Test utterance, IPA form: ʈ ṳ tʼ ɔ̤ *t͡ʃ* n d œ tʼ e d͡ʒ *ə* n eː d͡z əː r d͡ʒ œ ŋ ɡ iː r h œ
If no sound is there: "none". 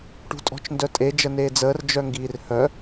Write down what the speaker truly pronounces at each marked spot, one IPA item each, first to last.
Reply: t͡ʃ, ə

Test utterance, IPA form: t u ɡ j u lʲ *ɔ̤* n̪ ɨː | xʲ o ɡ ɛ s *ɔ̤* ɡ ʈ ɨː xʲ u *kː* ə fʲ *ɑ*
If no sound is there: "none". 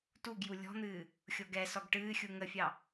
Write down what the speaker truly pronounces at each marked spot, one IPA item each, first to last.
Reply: ɔ̤, ɔ, ŋ, ɑ

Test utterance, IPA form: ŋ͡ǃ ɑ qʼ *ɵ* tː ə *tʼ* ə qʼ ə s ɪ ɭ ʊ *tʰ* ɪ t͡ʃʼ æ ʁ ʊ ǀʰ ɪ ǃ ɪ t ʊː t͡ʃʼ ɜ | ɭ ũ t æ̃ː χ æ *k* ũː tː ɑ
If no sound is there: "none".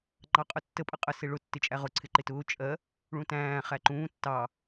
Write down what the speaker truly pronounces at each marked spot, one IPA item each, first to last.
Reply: ʊ, pʼ, tː, ǃ

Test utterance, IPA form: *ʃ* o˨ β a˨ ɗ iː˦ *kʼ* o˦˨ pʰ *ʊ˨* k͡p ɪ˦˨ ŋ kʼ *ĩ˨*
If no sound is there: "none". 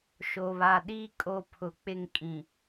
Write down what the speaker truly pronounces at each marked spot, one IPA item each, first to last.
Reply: ʃ, kʼ, ʊ˨, ĩ˨

